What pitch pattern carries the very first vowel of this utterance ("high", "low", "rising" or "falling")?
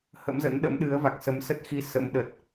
rising